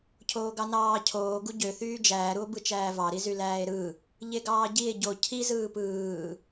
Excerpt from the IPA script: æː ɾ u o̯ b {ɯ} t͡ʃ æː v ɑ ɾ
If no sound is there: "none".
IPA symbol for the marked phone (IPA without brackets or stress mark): ɯ